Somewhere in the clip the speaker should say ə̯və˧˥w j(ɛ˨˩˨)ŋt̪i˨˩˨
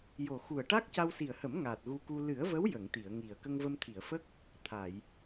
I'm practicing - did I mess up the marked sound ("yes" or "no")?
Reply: yes